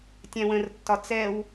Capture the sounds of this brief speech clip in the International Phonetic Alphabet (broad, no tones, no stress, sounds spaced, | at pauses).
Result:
tʲ æ̃ w ə̃ r tː ɒ t͡s ɛ w